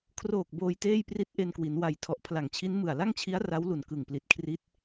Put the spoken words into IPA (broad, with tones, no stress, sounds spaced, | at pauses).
kʰ r oː˨˩ k̚ b oː˧ j t eː˥˩ j p r i˦˥ t̚ ʔ e˧ n k w i˩˦ n w a˨˩ j tʰ ɔ˨˩ ʔ pʰ l a˨˩ ŋ t͡ɕʰ i˦˥ n m ɯ˨˩ a̯ l a˥˩ ŋ t͡ɕʰ i˦˥ a̯ r a˦˥ w l u˨˩ n k ɯ˨˩ ŋ p l i˨˩ t̚ kʰ r i˦˥ t̚